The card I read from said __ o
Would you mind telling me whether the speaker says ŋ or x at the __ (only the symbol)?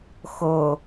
x